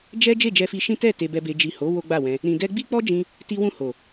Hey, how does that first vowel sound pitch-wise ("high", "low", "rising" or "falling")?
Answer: high